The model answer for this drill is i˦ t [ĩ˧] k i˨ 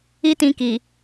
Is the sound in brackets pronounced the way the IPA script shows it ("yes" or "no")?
yes